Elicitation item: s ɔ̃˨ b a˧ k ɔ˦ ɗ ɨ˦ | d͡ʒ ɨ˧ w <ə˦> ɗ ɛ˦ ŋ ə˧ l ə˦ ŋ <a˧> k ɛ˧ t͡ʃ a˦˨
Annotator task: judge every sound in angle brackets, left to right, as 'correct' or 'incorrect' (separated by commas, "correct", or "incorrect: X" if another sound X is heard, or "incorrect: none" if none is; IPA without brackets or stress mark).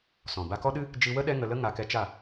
correct, correct